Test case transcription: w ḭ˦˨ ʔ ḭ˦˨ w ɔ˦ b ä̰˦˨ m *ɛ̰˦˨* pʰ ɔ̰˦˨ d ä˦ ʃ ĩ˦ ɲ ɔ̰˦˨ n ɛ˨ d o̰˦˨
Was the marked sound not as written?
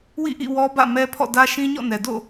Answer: yes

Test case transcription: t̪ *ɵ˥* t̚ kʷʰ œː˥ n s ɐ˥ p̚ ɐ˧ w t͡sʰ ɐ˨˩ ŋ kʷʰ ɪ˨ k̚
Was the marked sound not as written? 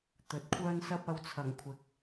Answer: yes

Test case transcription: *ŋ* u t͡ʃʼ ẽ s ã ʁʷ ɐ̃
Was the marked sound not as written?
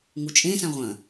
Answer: no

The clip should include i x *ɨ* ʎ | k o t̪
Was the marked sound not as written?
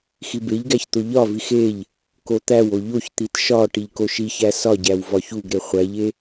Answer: yes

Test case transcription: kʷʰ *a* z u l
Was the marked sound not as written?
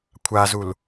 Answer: no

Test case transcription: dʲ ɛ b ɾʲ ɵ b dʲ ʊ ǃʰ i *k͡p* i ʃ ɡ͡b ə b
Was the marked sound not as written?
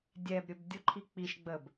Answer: no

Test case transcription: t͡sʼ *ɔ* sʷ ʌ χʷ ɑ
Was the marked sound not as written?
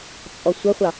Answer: no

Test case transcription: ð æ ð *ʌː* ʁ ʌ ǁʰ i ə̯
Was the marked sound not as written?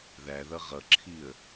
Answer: yes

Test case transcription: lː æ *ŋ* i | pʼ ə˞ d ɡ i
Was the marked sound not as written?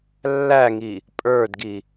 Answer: no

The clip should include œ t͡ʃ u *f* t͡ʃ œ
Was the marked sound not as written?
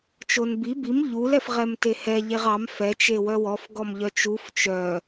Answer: no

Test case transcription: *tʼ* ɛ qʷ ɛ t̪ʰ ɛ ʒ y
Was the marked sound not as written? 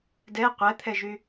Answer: yes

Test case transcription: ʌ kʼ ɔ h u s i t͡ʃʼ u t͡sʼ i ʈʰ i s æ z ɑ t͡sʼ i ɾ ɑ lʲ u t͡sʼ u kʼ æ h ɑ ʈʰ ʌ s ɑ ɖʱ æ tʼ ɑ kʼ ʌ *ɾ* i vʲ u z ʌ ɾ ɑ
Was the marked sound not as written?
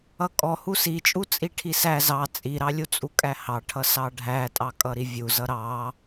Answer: no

